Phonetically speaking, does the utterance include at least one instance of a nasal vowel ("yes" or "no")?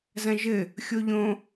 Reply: yes